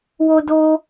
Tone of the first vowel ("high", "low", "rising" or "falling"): high